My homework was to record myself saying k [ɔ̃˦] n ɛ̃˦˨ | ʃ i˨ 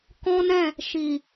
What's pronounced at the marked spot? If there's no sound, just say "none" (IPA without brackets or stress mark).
ɔ̃˦